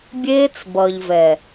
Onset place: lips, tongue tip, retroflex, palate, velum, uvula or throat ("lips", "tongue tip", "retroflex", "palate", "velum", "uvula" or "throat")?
lips